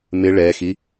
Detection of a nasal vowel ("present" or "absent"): absent